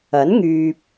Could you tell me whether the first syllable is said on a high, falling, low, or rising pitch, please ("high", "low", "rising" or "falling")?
rising